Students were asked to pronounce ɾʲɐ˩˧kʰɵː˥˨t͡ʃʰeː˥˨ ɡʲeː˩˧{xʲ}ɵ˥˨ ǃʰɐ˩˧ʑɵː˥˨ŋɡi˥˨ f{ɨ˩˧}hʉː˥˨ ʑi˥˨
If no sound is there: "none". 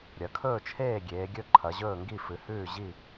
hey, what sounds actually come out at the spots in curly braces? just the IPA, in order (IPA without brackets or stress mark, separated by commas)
ɡʲ, ɨ˩˧